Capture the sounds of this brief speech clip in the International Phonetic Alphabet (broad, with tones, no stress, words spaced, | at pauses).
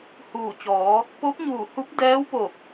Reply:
huː˧˩t͡ɕɔː˩˧ | po˧˥p̚ɲuː˧˩ hu˧˥p̚dɛː˧˥wpo˧˩k̚